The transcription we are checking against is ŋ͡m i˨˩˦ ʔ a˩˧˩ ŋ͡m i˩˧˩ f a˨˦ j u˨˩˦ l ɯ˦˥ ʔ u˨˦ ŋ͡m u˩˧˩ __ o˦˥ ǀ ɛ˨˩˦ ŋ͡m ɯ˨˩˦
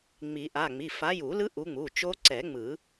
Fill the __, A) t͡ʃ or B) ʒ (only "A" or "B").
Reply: A